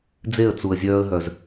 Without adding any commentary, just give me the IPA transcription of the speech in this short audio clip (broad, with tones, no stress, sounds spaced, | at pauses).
d͡z e˦˨ ə̯ t͡s u˨ ə̯ zʲ œː˧ ə̯ ɦ œ˨ z